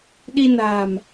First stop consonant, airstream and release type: implosive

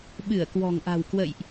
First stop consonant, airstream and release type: implosive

